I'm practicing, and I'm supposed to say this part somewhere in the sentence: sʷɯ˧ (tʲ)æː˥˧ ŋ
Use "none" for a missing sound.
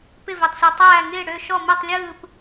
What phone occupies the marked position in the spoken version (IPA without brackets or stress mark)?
tˤ